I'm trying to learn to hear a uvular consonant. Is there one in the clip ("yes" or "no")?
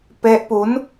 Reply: no